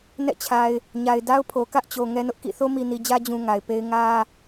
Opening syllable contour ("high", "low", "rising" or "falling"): falling